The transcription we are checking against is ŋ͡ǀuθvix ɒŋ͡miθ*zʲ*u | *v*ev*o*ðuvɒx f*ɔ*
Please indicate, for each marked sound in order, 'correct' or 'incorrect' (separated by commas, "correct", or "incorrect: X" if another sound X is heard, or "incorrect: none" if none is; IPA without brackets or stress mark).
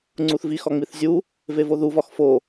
correct, correct, correct, incorrect: o